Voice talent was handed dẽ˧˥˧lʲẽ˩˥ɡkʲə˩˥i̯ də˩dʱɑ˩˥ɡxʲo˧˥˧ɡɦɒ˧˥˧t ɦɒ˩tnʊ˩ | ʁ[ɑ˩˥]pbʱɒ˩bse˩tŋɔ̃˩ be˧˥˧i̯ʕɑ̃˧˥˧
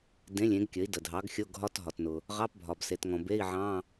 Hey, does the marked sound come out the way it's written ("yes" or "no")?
no